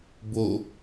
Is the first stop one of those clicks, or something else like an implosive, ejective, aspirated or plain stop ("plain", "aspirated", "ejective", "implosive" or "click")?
plain